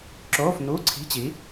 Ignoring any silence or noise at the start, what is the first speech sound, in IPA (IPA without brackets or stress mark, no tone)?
ǁ